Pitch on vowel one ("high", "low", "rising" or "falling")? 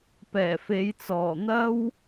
low